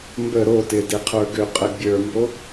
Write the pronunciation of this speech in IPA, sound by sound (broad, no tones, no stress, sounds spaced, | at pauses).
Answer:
m b ə ɾ o t ɪ d e qʰ ə˞ ɡ ʏ qʼ ə bʲ ə˞ m b o